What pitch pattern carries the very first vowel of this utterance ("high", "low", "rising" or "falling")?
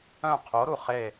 falling